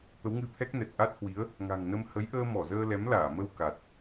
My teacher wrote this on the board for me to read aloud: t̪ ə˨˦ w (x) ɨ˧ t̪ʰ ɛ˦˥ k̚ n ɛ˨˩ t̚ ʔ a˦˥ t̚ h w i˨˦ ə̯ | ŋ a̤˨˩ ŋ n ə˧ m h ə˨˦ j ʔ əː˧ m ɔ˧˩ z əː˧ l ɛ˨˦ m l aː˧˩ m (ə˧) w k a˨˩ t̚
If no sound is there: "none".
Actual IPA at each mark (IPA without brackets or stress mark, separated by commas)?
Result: ŋ, ə˧